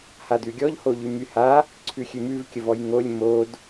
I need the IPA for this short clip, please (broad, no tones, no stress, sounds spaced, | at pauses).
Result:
h a d ʉ ɡʲ ɔ ʎ h o ʎ y m y h a | ǀʰ ʉ xʲ ʉ m ʉ v kʲ ə v ɔ j ŋ o lʲ m o d